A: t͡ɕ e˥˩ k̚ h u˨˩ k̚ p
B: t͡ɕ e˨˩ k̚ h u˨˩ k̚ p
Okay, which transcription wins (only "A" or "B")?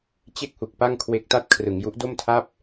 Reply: A